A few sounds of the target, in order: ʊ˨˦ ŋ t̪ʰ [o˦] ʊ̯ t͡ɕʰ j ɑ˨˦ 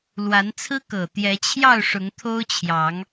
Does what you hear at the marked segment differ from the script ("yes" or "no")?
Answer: no